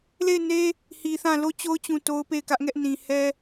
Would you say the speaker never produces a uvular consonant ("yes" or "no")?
yes